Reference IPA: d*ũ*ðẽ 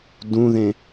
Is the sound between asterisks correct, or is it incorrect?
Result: correct